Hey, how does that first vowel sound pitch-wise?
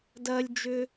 high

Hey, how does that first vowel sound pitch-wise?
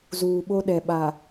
low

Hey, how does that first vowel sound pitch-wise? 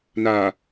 low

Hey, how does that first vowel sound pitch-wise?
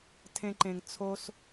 high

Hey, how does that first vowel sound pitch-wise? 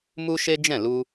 high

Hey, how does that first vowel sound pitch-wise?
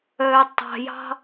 low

